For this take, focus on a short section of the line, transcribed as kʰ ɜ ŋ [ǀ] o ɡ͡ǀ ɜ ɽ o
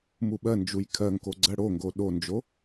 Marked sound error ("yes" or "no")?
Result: yes